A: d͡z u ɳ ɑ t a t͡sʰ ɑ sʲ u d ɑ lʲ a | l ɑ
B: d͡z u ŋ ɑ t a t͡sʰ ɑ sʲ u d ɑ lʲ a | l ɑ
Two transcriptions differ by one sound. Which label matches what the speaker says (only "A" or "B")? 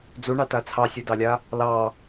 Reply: A